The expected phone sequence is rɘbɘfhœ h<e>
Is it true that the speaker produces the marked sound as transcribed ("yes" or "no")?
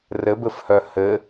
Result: no